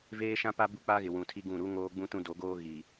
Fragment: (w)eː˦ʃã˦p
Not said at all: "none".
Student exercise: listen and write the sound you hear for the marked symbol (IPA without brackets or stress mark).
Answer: v